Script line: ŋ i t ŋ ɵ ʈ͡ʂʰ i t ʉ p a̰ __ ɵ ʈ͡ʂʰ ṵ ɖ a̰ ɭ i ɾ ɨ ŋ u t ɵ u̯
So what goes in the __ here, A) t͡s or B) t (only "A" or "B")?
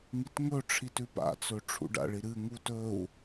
A